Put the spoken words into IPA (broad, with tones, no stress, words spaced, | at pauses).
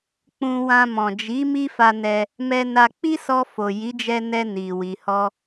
k͡pũ˧wã˧ mɔ̃˨d͡ʒi˨˦ mi˦fa˧nɛ˧ | mɛ˧na˧ k͡pi˦sɔ˧fo˨ ji˨˦d͡ʒɛ˧nɛ˧ ni˨ wi˨hɔ˧